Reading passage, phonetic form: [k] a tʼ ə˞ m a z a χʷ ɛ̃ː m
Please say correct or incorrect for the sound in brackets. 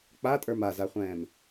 incorrect